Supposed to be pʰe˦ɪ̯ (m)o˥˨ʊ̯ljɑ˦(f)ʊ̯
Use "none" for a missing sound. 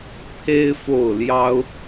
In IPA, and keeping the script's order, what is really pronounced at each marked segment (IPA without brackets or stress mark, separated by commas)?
f, none